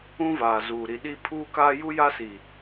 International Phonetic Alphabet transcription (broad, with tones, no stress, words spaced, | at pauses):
ũ˦vaː˨ zuː˨ɾi˨ɗi˦ pʰuː˦kaː˦ ju˦ja˦si˨